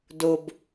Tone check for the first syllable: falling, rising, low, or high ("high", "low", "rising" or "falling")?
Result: low